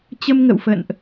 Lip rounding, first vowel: unrounded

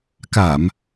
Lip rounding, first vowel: unrounded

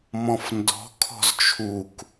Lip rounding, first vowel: rounded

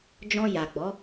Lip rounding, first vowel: rounded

